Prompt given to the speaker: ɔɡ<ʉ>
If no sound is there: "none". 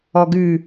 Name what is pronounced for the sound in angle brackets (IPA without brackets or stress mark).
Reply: ʉ